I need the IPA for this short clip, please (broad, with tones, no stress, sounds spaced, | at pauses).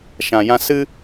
ʃ ã˨ j ã˧ s ɨ˦